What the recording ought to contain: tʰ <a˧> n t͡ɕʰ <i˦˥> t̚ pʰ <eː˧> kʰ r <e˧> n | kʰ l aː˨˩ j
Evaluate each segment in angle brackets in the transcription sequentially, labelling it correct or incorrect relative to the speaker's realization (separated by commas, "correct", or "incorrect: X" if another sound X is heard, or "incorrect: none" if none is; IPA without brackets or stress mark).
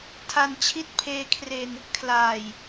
correct, correct, correct, correct